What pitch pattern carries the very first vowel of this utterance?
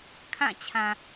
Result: falling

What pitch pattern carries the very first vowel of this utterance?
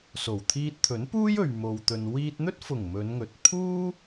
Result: low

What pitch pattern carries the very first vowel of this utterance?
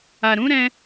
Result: low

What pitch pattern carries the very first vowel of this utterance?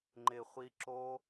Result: low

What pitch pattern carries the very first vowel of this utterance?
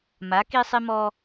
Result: rising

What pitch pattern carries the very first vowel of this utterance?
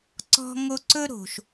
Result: high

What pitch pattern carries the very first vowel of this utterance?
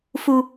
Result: high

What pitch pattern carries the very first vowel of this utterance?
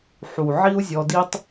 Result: low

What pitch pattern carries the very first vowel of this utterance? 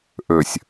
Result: low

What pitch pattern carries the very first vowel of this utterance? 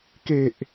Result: low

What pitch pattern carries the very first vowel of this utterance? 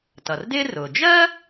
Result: low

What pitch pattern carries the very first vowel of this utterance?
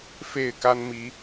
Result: falling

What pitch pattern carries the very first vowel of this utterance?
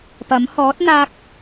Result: rising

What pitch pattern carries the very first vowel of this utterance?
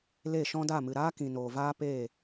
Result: falling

